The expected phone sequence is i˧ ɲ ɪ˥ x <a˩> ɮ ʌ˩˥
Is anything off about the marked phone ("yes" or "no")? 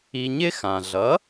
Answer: yes